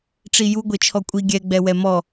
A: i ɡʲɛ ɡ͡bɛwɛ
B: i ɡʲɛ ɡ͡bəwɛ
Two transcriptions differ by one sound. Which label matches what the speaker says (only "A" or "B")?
A